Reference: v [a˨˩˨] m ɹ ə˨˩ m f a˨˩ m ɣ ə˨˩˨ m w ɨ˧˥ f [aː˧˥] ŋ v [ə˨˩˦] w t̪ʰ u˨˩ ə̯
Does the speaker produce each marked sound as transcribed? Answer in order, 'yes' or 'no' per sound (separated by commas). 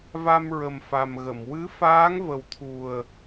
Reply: no, yes, no